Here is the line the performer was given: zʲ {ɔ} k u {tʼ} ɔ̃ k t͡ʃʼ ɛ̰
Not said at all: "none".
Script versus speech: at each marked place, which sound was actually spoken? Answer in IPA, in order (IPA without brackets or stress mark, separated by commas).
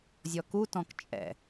ɔ, t